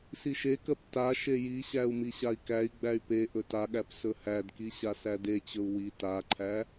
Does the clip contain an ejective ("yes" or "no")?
no